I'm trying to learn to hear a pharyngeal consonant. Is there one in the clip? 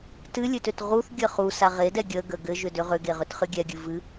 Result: no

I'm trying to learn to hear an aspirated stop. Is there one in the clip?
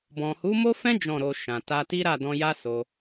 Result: no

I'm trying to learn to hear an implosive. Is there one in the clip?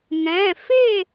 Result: no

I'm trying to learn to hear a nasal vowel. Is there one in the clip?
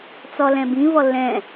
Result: yes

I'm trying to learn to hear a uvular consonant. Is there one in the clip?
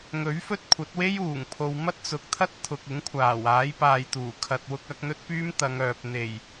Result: no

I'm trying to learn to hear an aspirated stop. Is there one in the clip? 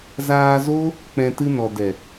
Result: no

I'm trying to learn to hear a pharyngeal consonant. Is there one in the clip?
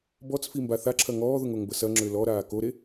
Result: no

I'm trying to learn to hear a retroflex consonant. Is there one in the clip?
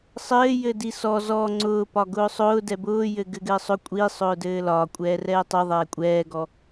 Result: no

